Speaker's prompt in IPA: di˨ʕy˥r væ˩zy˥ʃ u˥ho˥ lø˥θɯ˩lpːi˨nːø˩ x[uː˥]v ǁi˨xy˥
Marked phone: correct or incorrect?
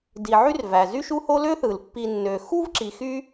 incorrect